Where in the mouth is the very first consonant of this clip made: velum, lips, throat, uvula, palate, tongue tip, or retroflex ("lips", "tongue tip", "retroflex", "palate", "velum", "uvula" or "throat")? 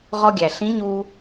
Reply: uvula